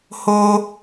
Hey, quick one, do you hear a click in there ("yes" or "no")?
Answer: no